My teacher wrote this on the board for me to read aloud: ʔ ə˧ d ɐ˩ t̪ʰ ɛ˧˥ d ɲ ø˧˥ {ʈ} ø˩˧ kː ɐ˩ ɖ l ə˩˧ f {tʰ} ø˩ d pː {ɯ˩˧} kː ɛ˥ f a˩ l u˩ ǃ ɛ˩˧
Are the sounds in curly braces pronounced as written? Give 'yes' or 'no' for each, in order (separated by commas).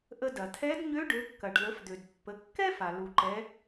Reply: no, no, no